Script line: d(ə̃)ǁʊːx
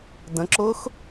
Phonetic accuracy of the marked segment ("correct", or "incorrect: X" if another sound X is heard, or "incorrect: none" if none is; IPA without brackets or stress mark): correct